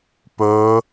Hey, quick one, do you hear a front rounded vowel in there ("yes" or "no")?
no